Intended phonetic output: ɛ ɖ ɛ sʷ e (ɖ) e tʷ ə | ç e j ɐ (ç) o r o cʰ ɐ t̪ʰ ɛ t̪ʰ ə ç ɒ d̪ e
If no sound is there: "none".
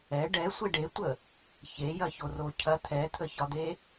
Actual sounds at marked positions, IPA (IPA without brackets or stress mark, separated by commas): ɖ, ç